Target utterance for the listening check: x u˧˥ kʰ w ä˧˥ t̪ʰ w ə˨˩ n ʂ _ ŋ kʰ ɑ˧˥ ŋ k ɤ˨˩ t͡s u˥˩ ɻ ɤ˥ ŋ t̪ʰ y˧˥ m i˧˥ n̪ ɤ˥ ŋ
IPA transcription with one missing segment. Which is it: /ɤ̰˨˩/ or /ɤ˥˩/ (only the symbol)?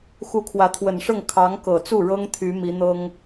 ɤ˥˩